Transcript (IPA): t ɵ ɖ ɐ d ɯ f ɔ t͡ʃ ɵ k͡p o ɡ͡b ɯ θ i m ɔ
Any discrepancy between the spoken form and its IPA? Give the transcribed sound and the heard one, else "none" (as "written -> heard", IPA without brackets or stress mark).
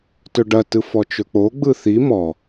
d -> t